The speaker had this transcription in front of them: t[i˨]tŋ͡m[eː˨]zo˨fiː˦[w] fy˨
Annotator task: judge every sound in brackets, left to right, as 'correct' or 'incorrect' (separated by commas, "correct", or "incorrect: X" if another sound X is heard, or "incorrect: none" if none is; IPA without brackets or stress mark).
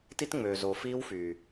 incorrect: i˦, incorrect: øː˨, correct